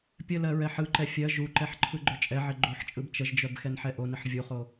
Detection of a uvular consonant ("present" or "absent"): present